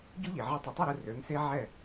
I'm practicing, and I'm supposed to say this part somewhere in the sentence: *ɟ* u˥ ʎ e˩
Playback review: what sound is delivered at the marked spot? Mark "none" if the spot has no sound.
ɟ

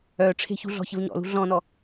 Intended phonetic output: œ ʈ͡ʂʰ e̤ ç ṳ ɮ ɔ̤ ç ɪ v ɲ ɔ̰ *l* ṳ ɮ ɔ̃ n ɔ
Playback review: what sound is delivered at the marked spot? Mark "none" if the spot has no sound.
l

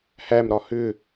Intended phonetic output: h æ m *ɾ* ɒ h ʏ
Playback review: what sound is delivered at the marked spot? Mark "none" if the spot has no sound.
ɾ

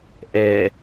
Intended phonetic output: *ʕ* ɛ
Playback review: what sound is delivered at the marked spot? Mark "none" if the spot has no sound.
ʔ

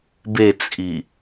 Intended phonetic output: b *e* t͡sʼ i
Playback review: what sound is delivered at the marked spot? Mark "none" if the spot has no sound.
e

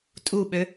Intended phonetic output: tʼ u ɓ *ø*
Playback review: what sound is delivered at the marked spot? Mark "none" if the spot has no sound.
ø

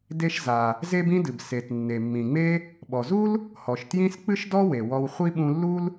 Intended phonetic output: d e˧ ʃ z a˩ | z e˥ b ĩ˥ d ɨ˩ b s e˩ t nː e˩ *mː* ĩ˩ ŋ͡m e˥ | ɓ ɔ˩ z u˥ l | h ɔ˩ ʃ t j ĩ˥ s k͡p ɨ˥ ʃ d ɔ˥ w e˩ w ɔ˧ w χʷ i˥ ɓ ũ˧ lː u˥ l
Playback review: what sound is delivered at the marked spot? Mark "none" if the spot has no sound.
mː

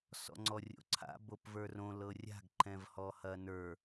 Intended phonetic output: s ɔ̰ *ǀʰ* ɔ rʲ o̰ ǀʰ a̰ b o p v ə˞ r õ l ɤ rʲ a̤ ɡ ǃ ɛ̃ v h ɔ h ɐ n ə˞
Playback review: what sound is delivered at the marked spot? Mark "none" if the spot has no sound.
ŋ͡ǀ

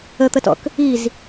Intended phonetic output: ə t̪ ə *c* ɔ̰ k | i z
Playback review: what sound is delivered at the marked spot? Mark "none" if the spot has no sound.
t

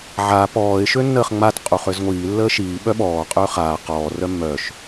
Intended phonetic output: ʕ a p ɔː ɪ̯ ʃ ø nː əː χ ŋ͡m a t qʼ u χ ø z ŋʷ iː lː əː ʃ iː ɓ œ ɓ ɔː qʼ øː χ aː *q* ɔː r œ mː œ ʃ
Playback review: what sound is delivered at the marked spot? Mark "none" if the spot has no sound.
q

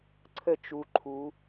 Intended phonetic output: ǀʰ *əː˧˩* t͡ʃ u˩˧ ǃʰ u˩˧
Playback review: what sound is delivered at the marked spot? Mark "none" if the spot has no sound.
ə˧˩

